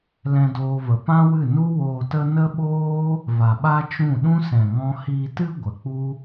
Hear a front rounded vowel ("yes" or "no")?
no